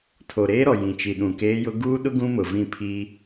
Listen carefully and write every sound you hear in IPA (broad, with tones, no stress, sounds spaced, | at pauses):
tʰ o˨ ɾ eː˦ ɾ ɔ˨ j ĩ˨ t͡ʃ i˨ ɗ ũ˨ k eː˦ j ʊ˦ ɡ uː˦ ɗ ʊ˦ ɡ ũ˦ m ʊ˨ v ĩ˦˨ pʰ i˦